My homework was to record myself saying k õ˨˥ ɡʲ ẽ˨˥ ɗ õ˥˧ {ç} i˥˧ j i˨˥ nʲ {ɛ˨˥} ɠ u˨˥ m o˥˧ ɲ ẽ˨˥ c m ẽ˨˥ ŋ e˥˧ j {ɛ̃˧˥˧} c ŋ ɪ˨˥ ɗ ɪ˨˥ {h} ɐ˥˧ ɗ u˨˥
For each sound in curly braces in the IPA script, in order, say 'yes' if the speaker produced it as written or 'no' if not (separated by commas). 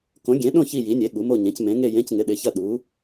yes, no, no, no